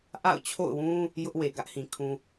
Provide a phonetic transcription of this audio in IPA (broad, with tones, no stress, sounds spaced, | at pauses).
ʔ a̰˦˨ ʊ̯ t͡ɕʰ o̰˦˨ ʊ̯ w ũ˦ | j ʊ˦ ʔ w e˨ ɡ ä˦ ʔ h ĩ˨ kʰ ũ˦